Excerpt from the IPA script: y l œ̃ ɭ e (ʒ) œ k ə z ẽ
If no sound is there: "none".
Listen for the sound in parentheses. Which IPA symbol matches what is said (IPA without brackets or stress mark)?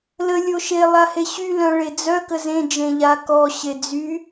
d͡z